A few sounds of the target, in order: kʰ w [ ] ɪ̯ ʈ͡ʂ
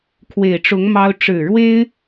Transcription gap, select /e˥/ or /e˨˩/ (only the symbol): e˨˩